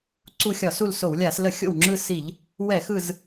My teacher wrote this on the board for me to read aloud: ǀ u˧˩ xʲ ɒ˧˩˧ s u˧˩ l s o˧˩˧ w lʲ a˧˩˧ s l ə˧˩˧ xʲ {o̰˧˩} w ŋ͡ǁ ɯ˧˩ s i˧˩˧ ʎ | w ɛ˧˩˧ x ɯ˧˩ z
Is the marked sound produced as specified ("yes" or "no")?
yes